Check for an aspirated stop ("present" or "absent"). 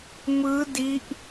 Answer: absent